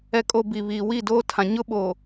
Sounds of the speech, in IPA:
ɛ˨ kʼ o˨ b i˨ β iː˨ w i˦˨ d oː˦ tʰ ã˨ ɲ ʊ˦ ɓ oː˨

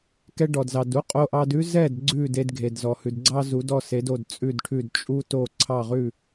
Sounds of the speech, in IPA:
k ɛ˧ ɖ ɔ˩ d z ɑ˩ d u˥ qʼ o˧ ʔ ɑ˧ d ʉ˥ z ɛ˥˩ d ɡ͡ǀ ʉ˥˩ d e˧ d ɡʱ e˩ d z ɔ˩ h ʉ˩ d ɡ͡ǀ ɑ˥ z u˩˥ d ɔ˥˩ s e˩˥ d o˥˩ d t͡sʼ ʉ˥˩ d ʈʰ ʉ˥˩ d t͡ʃʼ u˥ t o˥˩ ǀʰ ɑ˥˩ ʁ ʉ˥˩

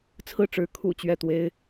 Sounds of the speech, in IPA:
t͡sʰ ɹ̩˥˩ ʈ͡ʂ ɻ̩˧˥ kʰ ṵ˨˩ t͡ɕ ɥ ɛ˥˩ t̪ w e˥ ɪ̯

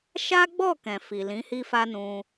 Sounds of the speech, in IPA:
ʃ a˦ ɡ͡b ɔ˦˨ k ɛ̃˨ f i˨ l ĩ˨˦ h i˦ f a˦ n ũ˧

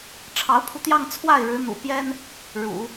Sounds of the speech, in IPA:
ʈ͡ʂʰ ɑ˧˥ ʊ̯ pʰ u˧ t̪ j ɑ˥˧ ŋ t͡sʰ w a˥˩ ɪ̯ ɻ ɻ̩˧˥ n̪ ṵ˨˩ p j ɛ˥ n | ɻ ṵ˨˩˦

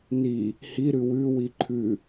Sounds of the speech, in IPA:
n i | h i ɾ ʉ w ʉ w i ǃʰ ʉ

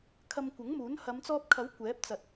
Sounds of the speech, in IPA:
kʰ ɐ˧ m kʷ ɐ˨˥ ŋ m uː˨˥ n h ɐ˨˧ m t͡s ɔː˧ p̚ kʰ ɐ˨˥ w kʷ ɛː˨˥ p̚ t͡s ɐ˨ t̚

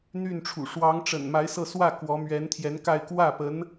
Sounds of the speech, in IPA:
n̪ y˥˩ n ʈ͡ʂʰ ṵ˨˩ ʂ w ɑ˧˥ ŋ ʈ͡ʂ ə̰˨˩ n m a˧˥ ɪ̯ s ɤ˥˧ s w ä˥˩ k w ɔ˧˥ m ɥ ɛ˧˥ n t̪ʰ j ɛ˧˥ n k a˥˧ ɪ̯ k w ä˥˩ p ə˧˥ n

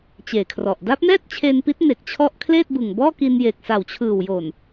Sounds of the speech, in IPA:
t͡ɕ eː˨˩ kʰ r ɔ˨˩ ʔ d a˦˥ p̚ n ɛː˥˩ t̚ t͡ɕʰ eː˧ n p i˦˥ t̚ n e˨˩ k̚ t͡ɕʰ ɔ˦˥ ʔ kʰ l eː˥˩ t̚ b ɯ˨˩ ŋ b ɔː˥˩ k i˧ n j eː˨˩ k̚ s a˨˩ w t͡ɕʰ ɯː˨˩ w j o˨˩ n

